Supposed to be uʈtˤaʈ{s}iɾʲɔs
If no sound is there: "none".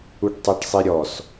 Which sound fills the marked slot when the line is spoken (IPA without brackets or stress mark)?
sˤ